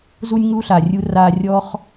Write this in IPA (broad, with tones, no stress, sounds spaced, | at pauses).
z u˦ nʲ ŋ u˦ ɬ a˨ rʲ u˧ r aː˧ rʲ ɔː˦ χ